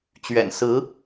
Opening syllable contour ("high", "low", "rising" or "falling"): low